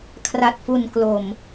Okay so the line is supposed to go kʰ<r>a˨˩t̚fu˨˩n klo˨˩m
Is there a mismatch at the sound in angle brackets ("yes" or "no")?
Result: no